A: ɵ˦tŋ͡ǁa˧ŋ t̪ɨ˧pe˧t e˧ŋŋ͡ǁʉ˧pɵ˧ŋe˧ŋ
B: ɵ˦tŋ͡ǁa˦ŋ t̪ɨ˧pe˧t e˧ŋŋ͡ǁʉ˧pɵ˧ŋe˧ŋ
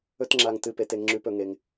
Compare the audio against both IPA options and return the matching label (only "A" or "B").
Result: A